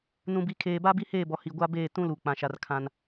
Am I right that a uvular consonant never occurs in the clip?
yes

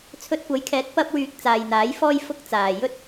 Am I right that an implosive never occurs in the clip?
yes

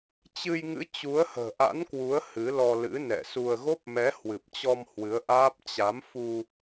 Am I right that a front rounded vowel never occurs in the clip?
yes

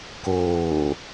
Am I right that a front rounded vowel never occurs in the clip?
yes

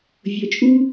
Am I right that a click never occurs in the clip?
yes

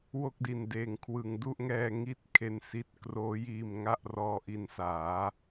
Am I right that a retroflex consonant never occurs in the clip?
yes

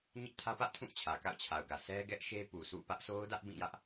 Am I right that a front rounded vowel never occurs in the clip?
yes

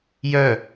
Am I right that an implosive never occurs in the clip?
yes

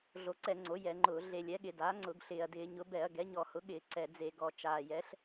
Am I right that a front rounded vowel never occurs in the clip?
yes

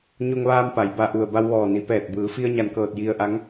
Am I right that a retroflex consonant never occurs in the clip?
yes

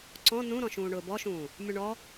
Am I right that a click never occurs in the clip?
no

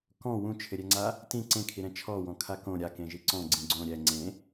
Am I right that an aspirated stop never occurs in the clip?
no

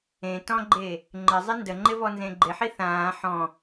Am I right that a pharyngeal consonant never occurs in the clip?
no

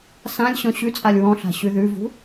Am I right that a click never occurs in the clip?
yes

